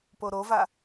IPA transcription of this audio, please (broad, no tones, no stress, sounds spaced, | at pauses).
p o ɾ o v a